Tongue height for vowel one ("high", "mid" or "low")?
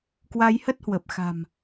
low